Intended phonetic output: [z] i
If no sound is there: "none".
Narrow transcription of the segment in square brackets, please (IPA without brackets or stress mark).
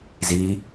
z